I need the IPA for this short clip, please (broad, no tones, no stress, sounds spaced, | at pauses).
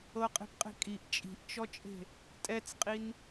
ɤ qʼ e̤ p qʼ e̤ kʼ i ʔ t͡ʃʼ i̤ ʔ t͡ʃ ɔ t͡ʃʼ e̤ | tʼ ɛ t͡s qʼ i n